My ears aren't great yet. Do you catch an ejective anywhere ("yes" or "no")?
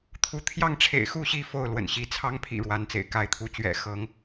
no